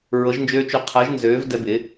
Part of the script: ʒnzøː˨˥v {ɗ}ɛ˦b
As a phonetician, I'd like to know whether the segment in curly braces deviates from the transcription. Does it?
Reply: yes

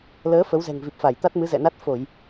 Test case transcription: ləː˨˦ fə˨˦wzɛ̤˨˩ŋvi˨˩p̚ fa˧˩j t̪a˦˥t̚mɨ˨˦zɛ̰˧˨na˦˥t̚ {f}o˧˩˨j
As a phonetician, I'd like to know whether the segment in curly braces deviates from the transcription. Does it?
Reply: no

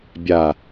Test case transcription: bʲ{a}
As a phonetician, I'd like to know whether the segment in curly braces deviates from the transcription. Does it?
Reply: no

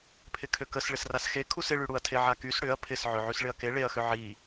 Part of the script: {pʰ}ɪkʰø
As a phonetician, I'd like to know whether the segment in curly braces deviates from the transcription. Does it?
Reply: no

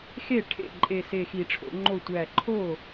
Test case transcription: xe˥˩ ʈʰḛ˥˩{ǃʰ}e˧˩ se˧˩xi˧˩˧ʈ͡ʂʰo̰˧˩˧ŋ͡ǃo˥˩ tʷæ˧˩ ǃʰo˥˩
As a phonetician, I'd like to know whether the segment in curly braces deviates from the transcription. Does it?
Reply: yes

